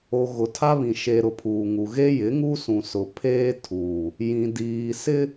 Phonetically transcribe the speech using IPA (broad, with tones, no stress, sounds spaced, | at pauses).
o˨ ɣ ʊ˨ tʰ a˦ β ĩ˨ ʃ e˨ ɾ ʊ˨ pʰ uː˨ ŋ u˨ ɣ e˦ j ɪ˨˦ ŋ u˦ s ũ˨ s ʊ˨ pʰ eː˦ tʰ uː˨ | j ĩ˨ d iː˨ s ɪ˦